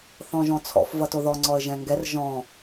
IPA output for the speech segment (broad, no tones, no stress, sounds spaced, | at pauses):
θ ɔ̃ ʒ ɔ̃ t͡sʰ ɔ̰ f v ʌ t o ð ɔ ŋ͡ǀ ɔ ə̯ ʒ ɛ̃ ŋ ɡ ɛ r ʒ ɔ̃